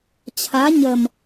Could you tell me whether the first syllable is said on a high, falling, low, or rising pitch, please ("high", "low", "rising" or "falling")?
rising